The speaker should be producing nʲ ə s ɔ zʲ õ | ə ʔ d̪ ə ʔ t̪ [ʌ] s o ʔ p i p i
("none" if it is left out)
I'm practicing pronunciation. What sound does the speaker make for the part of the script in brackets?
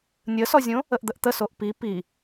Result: ə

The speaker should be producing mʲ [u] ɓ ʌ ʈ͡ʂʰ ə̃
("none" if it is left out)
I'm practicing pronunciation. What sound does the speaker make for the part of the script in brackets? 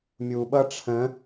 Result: u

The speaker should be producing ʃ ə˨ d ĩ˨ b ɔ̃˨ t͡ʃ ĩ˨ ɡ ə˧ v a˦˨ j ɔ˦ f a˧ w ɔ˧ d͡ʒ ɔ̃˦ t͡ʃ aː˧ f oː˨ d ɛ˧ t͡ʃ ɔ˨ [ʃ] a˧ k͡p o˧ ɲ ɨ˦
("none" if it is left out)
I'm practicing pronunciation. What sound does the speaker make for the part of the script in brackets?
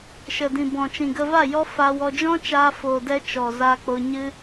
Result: z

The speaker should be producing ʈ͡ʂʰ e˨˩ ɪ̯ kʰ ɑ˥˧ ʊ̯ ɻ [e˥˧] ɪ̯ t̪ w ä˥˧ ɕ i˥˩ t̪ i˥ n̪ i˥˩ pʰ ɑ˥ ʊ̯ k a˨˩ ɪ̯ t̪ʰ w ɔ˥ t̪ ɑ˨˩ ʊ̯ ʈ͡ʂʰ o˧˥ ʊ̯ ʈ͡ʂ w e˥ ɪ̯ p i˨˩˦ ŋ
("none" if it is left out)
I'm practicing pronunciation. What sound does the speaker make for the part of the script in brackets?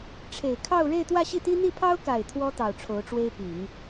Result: e˥˧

